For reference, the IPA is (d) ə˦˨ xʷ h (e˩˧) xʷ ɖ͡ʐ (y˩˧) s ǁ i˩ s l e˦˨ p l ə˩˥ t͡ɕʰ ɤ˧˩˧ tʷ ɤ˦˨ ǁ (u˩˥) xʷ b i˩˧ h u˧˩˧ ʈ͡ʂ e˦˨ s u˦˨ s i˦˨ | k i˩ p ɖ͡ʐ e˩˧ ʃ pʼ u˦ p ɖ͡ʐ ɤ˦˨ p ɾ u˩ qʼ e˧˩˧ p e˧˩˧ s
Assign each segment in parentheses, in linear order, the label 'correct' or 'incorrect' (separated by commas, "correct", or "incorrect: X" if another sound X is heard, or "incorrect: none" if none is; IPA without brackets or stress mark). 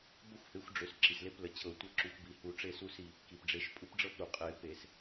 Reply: incorrect: b, incorrect: e˩˥, incorrect: ø˩˧, correct